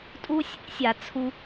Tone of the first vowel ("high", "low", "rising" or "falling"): high